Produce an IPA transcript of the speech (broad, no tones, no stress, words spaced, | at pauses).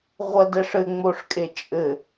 ʁʷɐdɛʂɘ ŋ͡moʂkʼet͡ʃʼɘ